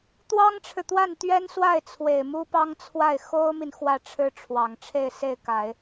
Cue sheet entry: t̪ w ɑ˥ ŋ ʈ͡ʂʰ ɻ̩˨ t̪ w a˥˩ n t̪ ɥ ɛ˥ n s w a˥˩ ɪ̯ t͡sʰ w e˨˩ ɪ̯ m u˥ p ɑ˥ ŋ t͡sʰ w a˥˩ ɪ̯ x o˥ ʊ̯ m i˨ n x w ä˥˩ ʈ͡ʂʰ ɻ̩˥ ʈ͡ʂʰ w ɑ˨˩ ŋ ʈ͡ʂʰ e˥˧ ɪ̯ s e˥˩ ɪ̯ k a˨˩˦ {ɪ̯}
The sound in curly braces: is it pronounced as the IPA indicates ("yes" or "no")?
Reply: yes